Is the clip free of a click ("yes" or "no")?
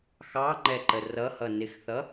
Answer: no